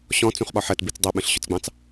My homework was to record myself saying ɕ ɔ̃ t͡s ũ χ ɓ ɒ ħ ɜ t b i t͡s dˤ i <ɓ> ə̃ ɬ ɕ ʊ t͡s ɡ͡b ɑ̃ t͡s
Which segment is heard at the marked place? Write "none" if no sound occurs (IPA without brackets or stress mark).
ɓ